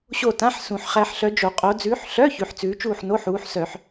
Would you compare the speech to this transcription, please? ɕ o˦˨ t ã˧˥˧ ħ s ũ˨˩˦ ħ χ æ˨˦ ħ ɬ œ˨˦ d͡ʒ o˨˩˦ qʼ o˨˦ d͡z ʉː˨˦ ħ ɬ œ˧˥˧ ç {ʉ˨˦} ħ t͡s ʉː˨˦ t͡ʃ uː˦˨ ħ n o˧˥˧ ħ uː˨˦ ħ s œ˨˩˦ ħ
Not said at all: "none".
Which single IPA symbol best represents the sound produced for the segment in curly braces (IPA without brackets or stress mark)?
ʉ˨˦